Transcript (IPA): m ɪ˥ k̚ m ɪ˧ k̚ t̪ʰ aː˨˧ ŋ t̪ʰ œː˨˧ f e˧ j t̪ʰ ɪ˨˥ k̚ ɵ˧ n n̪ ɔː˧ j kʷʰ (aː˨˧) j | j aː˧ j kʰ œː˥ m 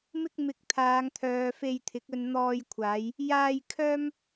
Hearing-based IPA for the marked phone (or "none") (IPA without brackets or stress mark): aː˨˧